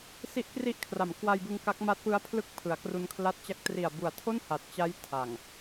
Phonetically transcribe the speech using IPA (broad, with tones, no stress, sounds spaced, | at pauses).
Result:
s i˦˥ ʔ k r i˦˥ ʔ kʰ r a˩˦ m k w a˧ j b ɯ˧ ŋ k a˦˥ k̚ m a˦˥ t̚ p ɯ˦˥ a̯ pʰ l ɯ˥˩ k̚ pʰ ɯ˩˦ a̯ k r u˧ n kʰ l a˦˥ t̚ t͡ɕ a˦˥ k̚ t r i˨˩ a̯ b u˨˩ a̯ tʰ o˥˩ n h a˨˩ t̚ t͡ɕ a˦˥ j tʰ a˨˩ ŋ